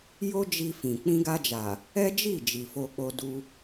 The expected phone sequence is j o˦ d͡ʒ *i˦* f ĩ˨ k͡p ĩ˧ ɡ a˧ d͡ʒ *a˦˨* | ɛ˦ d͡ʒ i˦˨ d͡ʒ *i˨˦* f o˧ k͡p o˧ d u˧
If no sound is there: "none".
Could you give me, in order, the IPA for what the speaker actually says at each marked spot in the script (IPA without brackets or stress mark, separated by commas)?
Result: i˧, a˨, i˨